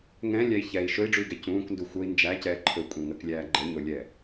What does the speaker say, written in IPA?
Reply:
ŋɛ̃lʲæi̯ çɛi̯ ʃɵi̯ɖ͡ʐʉi̯ɡɛ cũːkndu xʷəi̯ nd͡ʒæcɛː ǃʰɵkʷʼɛ̃ŋəklʲæː ɡ͡ǃəɲolʲɛ

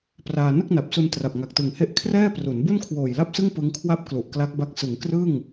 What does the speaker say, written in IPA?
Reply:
praː˧ nɯ˥˩k̚na˨˩p̚su˧n tra˨˩p̚ŋa˨˩k̚tɯ˨˩ŋhe˦˥ʔ kʰrɛː˥˩pru˩˦n bu˥˩nkʰwoː˨˩jla˥˩p̚sɯ˥˩ŋ pɯ˦˥ŋ kʰwa˦˥p̚ klu˨˩ʔkla˦˥k̚ba˦˥k̚ sɯ˩˦ŋkrɯ˥˩ŋ

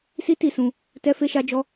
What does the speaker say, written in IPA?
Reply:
si˦ti˦˨sũ˧ | tɛ˦fe˦ʃa˦d͡ʒɔ˦

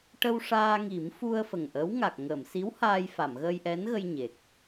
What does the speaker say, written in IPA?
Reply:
ʈə˧wʂaː˧ŋi˨˩˦mfu˧ə̯ fə˨˩ŋʔə˧˥w ŋa˨˩k̚ ŋə˨˩˨msi˧˥w haː˧j fa˨˩˨mɣəː˧jʔɛ˧˥nɣə˧j ɲe˨˩k̚

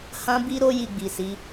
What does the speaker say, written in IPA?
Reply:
hã˦bi˦ɾo˦ ji˧ɡ͡bi˨si˨˦

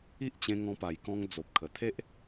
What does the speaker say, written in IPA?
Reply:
i˦ʔt͡ɕẽ˧ ŋɔ̃˧pa˨˩jkɔ̃˧ŋ d͡zo˨p̚kʰə˨˩t̪ʰe˦ʔ

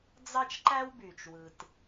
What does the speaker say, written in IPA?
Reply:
d͡zɑ˦t͡ʃǃæ˦wby˩t͡ʃwɯ˩t

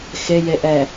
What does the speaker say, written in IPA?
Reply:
xejeʔɛ

